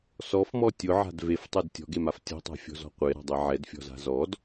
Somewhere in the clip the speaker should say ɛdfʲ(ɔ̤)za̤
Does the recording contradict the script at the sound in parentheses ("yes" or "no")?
no